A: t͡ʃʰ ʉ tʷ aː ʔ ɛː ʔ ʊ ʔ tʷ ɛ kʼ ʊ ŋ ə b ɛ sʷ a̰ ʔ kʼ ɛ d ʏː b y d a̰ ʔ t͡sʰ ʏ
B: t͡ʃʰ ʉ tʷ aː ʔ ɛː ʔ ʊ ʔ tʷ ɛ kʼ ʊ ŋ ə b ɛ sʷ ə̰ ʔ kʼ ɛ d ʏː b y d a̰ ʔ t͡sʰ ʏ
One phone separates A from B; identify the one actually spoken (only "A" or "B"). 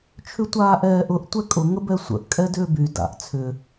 B